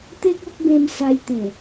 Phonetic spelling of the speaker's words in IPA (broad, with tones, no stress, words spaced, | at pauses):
t̪e˦k̚o˦k̚bẽ˧m sa˧jt̪ẽ˨˩